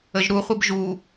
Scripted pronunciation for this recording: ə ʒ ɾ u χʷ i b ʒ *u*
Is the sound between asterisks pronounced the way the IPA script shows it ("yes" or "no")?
yes